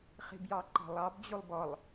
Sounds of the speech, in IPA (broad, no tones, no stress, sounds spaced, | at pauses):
χ i̤ b j ɑ ǃ ɑ̤ lˠ ɑ b d͡ʑ u lˠ b ɔ lˠ